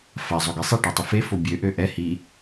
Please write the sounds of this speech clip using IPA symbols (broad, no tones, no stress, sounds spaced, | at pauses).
f a zˤ o ɡ i sˤ e ʈ ø tˤ i f e f o bʲ ø ʔ ø ʔ ɛ h i